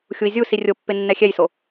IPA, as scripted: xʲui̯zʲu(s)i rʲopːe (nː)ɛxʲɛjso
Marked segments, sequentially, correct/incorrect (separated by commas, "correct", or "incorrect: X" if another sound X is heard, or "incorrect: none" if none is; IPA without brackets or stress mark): correct, correct